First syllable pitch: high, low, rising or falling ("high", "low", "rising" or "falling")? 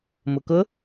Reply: low